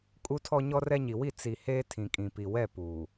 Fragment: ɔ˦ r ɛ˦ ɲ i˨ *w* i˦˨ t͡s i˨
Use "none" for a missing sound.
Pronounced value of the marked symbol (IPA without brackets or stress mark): w